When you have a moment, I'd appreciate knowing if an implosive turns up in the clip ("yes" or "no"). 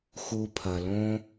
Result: no